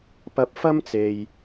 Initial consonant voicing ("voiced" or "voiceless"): voiceless